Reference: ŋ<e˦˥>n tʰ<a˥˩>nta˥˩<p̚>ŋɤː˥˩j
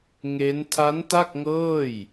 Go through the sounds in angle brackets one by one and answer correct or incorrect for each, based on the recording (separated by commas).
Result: correct, incorrect, incorrect